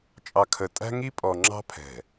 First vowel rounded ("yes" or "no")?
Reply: no